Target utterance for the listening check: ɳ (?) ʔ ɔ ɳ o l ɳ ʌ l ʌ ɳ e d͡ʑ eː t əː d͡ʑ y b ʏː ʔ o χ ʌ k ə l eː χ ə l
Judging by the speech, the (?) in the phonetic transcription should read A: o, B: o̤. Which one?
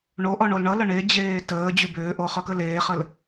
A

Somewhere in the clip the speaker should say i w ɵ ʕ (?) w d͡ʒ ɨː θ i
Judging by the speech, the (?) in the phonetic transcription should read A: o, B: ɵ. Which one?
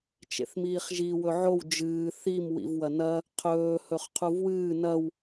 A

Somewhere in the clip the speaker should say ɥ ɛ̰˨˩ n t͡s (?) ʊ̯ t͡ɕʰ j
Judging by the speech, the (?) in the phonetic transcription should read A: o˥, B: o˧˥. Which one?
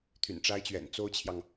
A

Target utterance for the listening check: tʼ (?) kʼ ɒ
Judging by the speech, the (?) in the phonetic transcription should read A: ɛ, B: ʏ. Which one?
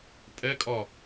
A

